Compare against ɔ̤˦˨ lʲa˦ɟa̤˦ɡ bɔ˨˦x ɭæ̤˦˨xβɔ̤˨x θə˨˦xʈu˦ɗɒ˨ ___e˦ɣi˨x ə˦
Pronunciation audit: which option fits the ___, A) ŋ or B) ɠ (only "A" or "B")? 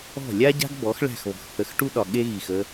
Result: B